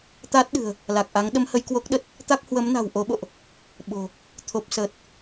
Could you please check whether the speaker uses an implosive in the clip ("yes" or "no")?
yes